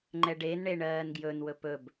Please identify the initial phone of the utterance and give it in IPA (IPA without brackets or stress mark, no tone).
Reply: ŋ͡ǃ